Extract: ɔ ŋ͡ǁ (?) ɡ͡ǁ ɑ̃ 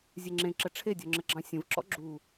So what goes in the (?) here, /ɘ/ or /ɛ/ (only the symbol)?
ɘ